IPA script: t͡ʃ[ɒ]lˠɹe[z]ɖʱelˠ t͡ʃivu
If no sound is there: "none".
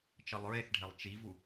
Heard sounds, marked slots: ʌ, θ

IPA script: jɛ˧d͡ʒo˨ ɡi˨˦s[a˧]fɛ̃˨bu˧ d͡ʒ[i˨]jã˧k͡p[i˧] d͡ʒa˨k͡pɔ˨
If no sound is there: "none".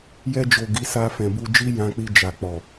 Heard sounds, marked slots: a˧, i˦, i˧

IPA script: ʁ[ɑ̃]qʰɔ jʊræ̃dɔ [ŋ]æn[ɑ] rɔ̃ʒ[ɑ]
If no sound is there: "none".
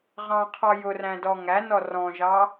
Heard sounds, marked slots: ɑ̃, ŋ, ɔ, ɑ

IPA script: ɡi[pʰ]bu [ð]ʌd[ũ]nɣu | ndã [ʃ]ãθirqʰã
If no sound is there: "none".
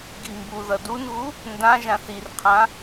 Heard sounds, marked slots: m, ð, u, ʒ

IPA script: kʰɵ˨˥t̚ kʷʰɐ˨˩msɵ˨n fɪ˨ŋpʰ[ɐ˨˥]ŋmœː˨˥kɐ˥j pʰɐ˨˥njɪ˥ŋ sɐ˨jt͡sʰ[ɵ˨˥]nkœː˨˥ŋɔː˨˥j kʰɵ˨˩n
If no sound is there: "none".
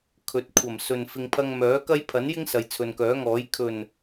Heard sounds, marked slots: ɐ˧, ɵ˨

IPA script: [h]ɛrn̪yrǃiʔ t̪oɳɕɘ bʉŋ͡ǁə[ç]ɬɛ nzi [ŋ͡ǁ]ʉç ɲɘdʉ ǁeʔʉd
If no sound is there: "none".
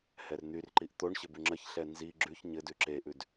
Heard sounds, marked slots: h, ç, ɡ͡ǁ

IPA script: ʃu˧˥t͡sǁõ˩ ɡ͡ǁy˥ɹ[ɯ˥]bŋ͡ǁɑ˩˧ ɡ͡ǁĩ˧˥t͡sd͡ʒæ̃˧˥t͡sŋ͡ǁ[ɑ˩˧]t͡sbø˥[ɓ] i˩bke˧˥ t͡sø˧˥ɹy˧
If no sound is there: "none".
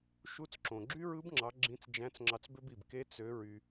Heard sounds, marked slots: ɯ˧˥, ɑ˧, b

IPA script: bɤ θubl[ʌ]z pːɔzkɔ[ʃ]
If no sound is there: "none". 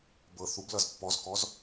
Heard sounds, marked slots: ʌ, z

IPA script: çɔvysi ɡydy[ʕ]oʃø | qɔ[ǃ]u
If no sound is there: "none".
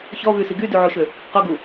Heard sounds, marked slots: ʕ, ɡ

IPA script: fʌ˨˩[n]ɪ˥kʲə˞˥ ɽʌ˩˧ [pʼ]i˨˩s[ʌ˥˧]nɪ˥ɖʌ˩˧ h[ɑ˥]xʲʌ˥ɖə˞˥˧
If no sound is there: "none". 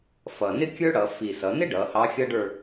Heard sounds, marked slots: n, f, ʌ˩˧, ɑ˧˥

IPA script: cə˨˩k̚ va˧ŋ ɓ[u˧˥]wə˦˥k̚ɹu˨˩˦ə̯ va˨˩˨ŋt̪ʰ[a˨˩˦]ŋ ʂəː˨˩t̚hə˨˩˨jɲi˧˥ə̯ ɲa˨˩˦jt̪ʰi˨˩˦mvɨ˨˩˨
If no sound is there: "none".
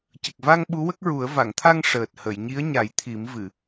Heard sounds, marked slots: u˧˥, a˧

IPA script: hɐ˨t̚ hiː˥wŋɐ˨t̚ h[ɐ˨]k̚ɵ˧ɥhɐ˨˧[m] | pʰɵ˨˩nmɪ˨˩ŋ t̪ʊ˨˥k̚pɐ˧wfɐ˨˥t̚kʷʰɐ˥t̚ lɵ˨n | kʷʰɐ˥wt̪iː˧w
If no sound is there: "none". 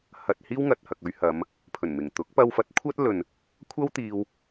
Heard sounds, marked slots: ɐ˨, m

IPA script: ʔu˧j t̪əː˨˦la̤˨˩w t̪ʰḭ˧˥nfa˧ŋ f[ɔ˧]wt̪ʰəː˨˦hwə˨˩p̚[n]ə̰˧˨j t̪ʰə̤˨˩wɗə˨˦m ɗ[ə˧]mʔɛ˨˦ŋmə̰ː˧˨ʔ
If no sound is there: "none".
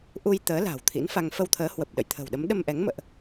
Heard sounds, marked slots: ə˧, ɗ, ə˧

